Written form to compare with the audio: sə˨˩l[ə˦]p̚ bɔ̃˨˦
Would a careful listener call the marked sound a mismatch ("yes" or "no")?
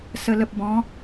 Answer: yes